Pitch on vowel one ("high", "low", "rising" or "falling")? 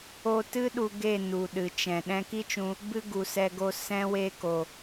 high